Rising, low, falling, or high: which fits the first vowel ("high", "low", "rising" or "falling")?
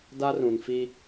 high